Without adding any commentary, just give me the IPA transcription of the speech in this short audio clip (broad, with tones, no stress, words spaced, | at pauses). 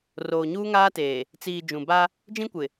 roː˨ɲuː˦ŋaː˦teː˨ | t͡siː˨ d͡ʒũ˨ba˦ | d͡ʒĩ˦kʷɪ˨